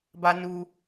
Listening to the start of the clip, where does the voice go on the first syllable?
high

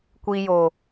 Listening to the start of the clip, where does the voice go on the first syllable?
low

